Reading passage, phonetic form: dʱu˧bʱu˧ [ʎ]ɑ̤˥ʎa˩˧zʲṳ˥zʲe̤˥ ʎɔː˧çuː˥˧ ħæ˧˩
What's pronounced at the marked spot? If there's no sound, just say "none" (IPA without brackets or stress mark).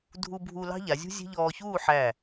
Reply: l